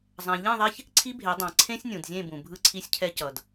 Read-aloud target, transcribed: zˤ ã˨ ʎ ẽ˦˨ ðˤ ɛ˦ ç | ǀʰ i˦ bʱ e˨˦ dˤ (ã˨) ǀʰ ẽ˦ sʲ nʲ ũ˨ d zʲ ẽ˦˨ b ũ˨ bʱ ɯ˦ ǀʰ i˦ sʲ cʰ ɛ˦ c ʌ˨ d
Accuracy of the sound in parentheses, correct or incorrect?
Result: correct